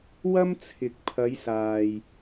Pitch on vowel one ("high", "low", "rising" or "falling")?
high